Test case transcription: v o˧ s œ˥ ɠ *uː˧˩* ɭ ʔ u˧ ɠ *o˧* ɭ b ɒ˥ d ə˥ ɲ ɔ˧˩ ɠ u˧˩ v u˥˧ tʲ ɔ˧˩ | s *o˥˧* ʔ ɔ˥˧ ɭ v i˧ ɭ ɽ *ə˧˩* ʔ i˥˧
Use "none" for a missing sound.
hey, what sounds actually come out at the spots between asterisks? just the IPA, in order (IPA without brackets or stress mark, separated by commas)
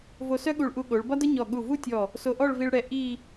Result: u˧˩, o˩˧, o˧, ɛ˧˩